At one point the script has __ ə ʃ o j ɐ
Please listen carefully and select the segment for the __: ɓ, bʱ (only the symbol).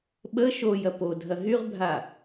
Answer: ɓ